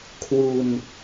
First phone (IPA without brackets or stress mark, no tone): kʰ